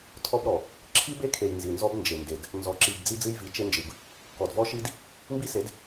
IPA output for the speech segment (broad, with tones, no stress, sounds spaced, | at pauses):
tʰ ɔ˦ b ɾ ɔ˨ | ǁʰ i˦ b e˦ kʰ e˨ j n z i˨ n z ɔ˦ b n d͡ʒ e˨ n d e˨ d | n z ɔ˨ ǁ i˨ b d͡z i˦ d͡z ɨ˦ j v i˨˦ t͡ʃ e˦ n d͡ʒ ɨ˨ b | k ɔ˨ d v ɔ˦ ʃ i˦ d | m b i˦ s e˨˦ d